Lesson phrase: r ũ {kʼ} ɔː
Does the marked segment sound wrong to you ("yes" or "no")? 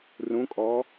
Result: no